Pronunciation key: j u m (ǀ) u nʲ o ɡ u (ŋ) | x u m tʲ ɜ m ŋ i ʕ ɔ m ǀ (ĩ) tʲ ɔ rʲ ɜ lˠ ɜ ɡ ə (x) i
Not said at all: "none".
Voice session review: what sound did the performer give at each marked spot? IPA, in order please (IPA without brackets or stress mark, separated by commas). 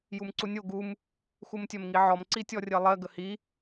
ǀ, m, i, h